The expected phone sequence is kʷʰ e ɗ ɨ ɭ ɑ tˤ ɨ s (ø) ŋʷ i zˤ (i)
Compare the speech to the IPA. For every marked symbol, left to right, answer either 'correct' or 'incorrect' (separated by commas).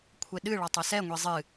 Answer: incorrect, incorrect